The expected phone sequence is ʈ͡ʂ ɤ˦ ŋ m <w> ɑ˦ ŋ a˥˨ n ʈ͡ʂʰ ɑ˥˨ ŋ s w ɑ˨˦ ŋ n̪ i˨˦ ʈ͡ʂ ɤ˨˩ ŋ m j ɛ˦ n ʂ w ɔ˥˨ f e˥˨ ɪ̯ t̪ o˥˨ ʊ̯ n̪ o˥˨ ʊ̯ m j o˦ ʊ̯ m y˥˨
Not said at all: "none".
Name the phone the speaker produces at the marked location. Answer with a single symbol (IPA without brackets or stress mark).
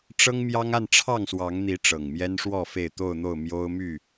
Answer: j